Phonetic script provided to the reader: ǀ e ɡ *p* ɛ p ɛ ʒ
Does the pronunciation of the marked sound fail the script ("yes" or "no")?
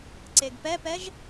no